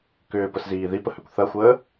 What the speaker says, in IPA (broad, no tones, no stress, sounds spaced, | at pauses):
k ʏː p ə s z iː ð i p ə h ø kʷ θ ɐ xʷ əː